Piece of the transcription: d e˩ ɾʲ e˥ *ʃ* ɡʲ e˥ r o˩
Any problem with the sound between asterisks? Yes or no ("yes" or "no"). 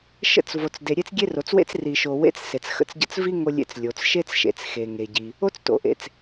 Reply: yes